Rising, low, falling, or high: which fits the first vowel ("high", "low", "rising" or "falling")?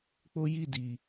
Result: high